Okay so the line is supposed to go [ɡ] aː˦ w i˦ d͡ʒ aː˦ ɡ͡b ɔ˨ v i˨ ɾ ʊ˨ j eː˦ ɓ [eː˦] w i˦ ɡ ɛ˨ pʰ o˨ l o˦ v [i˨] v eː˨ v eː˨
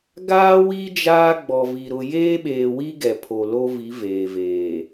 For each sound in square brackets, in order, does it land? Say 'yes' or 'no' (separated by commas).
yes, no, no